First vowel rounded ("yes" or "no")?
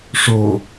yes